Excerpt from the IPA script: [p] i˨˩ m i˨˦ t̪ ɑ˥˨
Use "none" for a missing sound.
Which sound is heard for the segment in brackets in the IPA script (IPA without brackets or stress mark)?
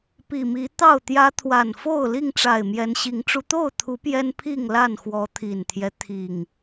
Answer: p